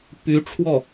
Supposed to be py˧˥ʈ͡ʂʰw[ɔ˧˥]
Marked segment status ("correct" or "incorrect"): incorrect